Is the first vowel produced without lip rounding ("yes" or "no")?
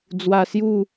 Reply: yes